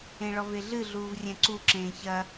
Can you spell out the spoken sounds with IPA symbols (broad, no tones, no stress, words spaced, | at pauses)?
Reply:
ẽɭɔveɮɨ ɮuːvrʲɛ̃ǀu ǁẽːçɐ